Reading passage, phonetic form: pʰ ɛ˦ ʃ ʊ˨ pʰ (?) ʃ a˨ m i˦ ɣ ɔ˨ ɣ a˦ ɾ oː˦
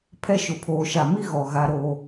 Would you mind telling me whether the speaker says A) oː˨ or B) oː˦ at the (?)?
A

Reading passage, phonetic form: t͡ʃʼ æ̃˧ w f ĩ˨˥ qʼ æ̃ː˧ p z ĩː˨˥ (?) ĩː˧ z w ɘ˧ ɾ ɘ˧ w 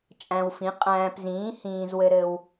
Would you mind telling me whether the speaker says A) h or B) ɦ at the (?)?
A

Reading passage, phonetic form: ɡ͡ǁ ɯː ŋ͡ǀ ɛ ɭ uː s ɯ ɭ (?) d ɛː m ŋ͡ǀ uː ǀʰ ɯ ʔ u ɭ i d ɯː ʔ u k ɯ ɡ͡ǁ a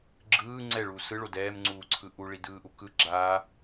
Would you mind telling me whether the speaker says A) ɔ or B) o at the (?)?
B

